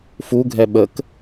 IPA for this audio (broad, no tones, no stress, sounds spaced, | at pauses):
f u ɡʱ ɛ ɓ ə k